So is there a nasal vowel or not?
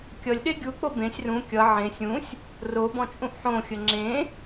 yes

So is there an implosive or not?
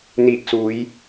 no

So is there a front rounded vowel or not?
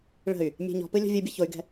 yes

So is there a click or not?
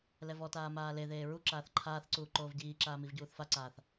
yes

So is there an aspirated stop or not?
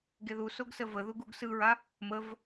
no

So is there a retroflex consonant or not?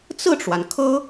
yes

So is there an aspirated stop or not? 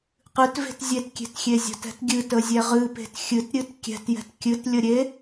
no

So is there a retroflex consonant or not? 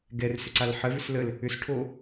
yes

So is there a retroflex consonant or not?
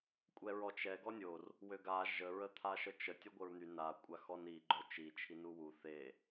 no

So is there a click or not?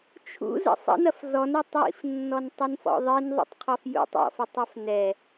no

